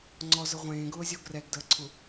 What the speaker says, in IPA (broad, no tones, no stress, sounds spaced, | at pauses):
ŋ͡ǀ ɔ z ə ʁʷ ẽː ɡ ʊː zʲ o ɡ r ɛ ɡ d əː ǀʰ u